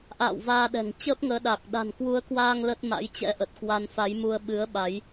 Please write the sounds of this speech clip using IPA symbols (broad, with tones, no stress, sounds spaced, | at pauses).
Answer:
ʔ a̰ː˧˨ w v aː˧ ɗ ɛ̤˨˩ ŋ t͡ɕ əː˦˥ p̚ ŋ əː˨˦ ɗ a˨˩ k̚ ɗ a̤˨˩ n k w u˨˦ ə̯ k w aː˧ ŋ l ə˦˥ t̚ m a̰˧˥ j t͡ɕ ɛ̰˧˥ ʔ ə˨˩ t̚ k w a˧ n f a˨˦ j m u˧ ə̯ ɓ ɨ˨˦ ə̯ ɓ a˨˦ j